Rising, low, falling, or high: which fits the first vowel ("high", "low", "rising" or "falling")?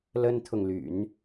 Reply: high